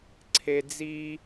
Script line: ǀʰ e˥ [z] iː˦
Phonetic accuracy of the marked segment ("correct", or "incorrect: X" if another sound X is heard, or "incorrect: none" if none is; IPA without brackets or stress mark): incorrect: d͡z